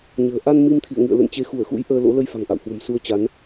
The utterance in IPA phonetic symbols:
ɲ ə̤ː˨˩ ʔ a˧ n m i˧ m t̪ʰ ḭ˧˨ ə̯ ŋ ɨ̰˧˨ ə̯ l ə̰˧˨ n t͡ɕ e˨˦ x u˧˩ ə̯ x ṵ˧˥ j ʔ əː˧ l o̰˧˥ l ə˧ j f a̤˨˩ ŋ ʔ a̰˧˨ w h w ə̤˨˩ m s u˧ ə̯ t͡ɕ a˨˦ n

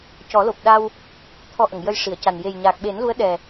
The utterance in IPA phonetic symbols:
c ɔ˨˩˦ l o˨˩ p̚ ɗ a˧ w | t̪ʰ ɔ˧ ʔ ə˨˩˨ ŋ j ə˧ j ʂ i˨˩˨ ə̯ c a˨˩ n j e˨˩ j ɲ aː˨˩ k̚ ɓ e˨˩˦ n l u˧˥ ə̯ ɗ ɛ˨˩

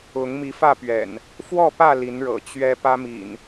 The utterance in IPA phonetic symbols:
ʊ˨˦ ŋ m i˨˦ f ä˥˨ p ɥ ɛ̰˨˩ n | f w ɔ˥˨ p ä˥˨ l i˨˦ n ɻ ɤ̰˨˩ t͡ɕ ɥ ɛ˨˦ p ä˦ m ḭ˨˩ n

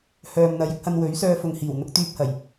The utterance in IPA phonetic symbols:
h œː˨ m n̪ ɐ˨ j ɪ˥ k̚ h ɐ˧ n w ɵ˨˥ ɥ s œː˧ f ʊ˨ ŋ h iː˨˩ w n̪ ʊ˨˥ k̚ t̪ yː˧ p̚ h ɐ˨˩ j

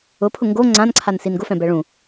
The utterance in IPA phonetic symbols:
ʊ pʰ ʊ ŋ ɡ o ŋ͡ǀ ã n ǀʰ a n s i n ɡ ʊ f ɛ̃ b ɛ ɭ ũ

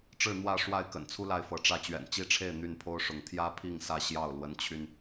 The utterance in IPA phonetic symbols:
ʈ͡ʂ ɻ̩˥˨ n̪ w ä˥˨ ʂ w a˥˨ ɪ̯ k ə̰˨˩ n t͡sʰ u˦ l a˨˦ ɪ̯ f ɤ˨˦ ʈ͡ʂ ä˥˨ t͡ɕ ɥ ɛ̰˨˩ n t͡ɕ i˥˨ ʈ͡ʂʰ e˥˨ ɪ̯ n̪ y˥˨ n pʰ o˦ ʊ̯ ʂ ʊ˨˦ ŋ t̪ʰ j ä˦ pʰ i˥˨ ŋ s ä˥˨ ɕ j ɑ˥˨ ʊ̯ l w ə˨˦ n t͡ɕʰ y˧ n

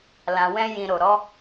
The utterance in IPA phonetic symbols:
l ã˨ w ɛ̃˧ j ĩ˨ ɾ o˨ ɾ ɔ˨˦

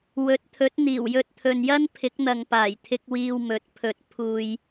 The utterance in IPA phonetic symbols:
w ɵ˨˥ t̚ t̪ʰ ɵ˨˥ t̚ n̪ iː˨˩ w j ɵ˧ t̚ t̪ʰ ɵ˨ n j ɐ˥ n pʰ ɪ˨˥ k̚ n̪ ɐ˨ ŋ p aː˨˩ j t̪ʰ ɪ˧ k̚ w iː˧ w m ɵ˨˥ t̚ pʰ ɵ˨ t̚ pʰ uː˨ j

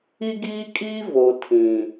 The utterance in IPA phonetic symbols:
i˦ ɡ iː˦ kʼ iː˦ v o˨ tʰ ĩ˨

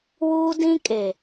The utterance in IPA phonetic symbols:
w uː˦ d ĩ˦ kʼ e˨

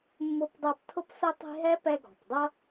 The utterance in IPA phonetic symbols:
mː ʊ˦ p dˤ æ˦ p tʰ ʊ˥ p s ʊ˥ tˤ i̤˦ ɦ ɛ˥ p ɛ˦ ɡ ɔ̤˩ p dˤ ʌ˥

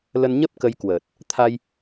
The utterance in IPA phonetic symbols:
l ə˧ n ɲ ə˦˥ p̚ k ə˧ j k w əː˨˩ t̚ | t̪ʰ a˧ j

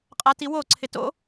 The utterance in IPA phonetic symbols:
qʼ a t i w o ǀʰ ɪ t o̰

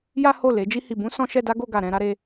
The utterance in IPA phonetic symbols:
j a˦ h o˦˨ l e˨˦ d͡ʒ i˦ h i˧ b ũ˦ s ɔ̃˦ ʃ ɛ˦ d a˦ ɡ o˧ ɡ a˨ ɾ ɛ̃˧ ɾ a˦ ɾ e˦

